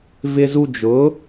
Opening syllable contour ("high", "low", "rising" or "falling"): high